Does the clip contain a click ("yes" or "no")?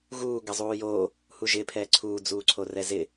yes